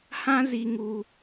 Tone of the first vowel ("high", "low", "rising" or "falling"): high